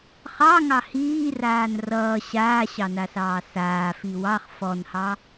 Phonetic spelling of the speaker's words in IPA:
χɑŋɑ hiːraːn rʌː ɕaːɕɑnasɑː saːfi wɑχ fɔnhɑ

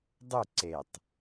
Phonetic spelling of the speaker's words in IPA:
dˤu ǀetˤ

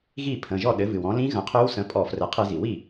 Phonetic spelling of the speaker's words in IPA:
ɣi˥˩pʰə̃˩˧˩ʒɔ˥˩ ɗɘ˩˥vɨ˩wɔ̃˩˥ lĩ˧˥ɣə̃˩˥ qʰø˧˥wsə̃˩˥ pʼɔ˧˩˧ frɘ˩˥qʰɨ˧˩˧zi˩ wi˥˩

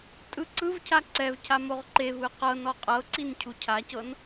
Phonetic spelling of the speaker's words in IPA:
tʼɯǀɯvcʰa ǀɛvcʰa moʁǃevɯ qɤn ɔqʼɤǀin cʰucʰacɤn

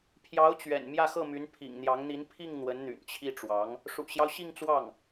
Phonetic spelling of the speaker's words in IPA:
pʰjɑ˧˥ʊ̯t͡ɕɥɛ̰˨˩n mjä˥˧xɤ˥˩my˧˥n pʰḭ˨˩ŋn̪jɑ˧˥ŋn̪i˧˥n pʰi˥˩ŋ n̪wə˧˥nn̪y̰˨˩nt͡ɕʰi˥˩ʈ͡ʂwɑ˧˥ŋ | ʂṵ˨˩ɕjɑ˦ʊ̯ ɕi˥˧ŋt͡swɑ˥˩ŋ

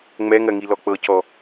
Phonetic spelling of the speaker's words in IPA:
ŋ͡mɛŋɜŋi lɔk͡pɤcɔ

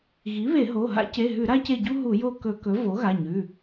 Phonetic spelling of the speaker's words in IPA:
ɣi˩˥βe˧˩˧ɦo˩˧˩ ɦa̰˥ce˩˧˩ɦʉ˧˩˧ ɾa˥ce˦˨ɟu˥ ɦu˧˩˧jo˦˨kɵ˧˩˧kɵ˩˥ vo˩˥ɣa˩˧˩ɲʉ˩˧˩

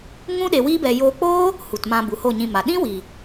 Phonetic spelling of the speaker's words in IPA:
ŋũ˦ɗe˧ wiː˦bɛ˧ joː˧k͡poː˦ | hu˨tmã˧ bu˨ho˦˨ɲĩ˧ma˨ ɗĩ˦wi˨

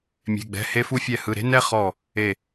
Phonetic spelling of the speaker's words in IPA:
mʲe̤˧˥˧ɡ͡bɛ̤˧˥˧he˥ fu˥fʲɛ˥˧hɯ˧˥˧ ɾe̤˥nɛ˥ χɔ˥˧ | e˥˧

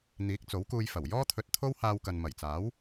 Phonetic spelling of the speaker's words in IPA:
n̪iː˨˥k̚t͡so˨˥wkuː˧jfɐ˨˩w jɔː˥t̪ʰɵ˧t̚t̪ʰo˥w haː˧wkɐ˨nmɐ˨˩jt͡saː˨˥w

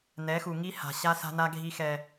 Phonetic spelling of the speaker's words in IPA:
nɛ˨˦xu˨ ŋi˦ha̤˨ɕa˦ sa̤˦na˦ɡʱi˦ xɛ˦

